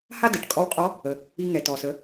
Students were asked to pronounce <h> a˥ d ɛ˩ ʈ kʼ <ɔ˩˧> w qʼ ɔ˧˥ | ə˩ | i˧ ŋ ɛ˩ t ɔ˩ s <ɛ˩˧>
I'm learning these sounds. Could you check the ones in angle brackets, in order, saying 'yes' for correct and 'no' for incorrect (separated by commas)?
yes, no, no